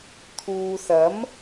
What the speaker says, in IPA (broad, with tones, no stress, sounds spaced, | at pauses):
t̪ʰ uː˨ s ɐ˨˥ m